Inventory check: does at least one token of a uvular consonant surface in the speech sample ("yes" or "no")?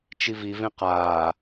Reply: yes